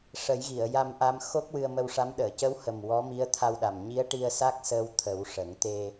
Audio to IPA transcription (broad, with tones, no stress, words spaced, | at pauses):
ʂə˨˩˦jɣi˨˩˨ə̯ja˧mʔa˧m xo˦˥k̚wɨ˧ə̯mə˧wʂa˧˥m ɗəː˨˩˨cə˧˥whə˨˩m wɔ˧˥mi˧˥ə̯t̪ʰa˧wɗa˨˩m ɲi˧˥ə̯ʈi˧ə̯sa˦˥k̚ səː˧w t̪ʰə˨˩˦wʂə˨˩˦ŋ t̪e˧